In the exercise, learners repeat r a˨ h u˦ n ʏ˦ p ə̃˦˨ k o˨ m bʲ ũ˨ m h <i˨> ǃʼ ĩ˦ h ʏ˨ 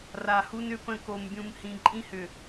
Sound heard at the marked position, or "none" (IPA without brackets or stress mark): ĩ˨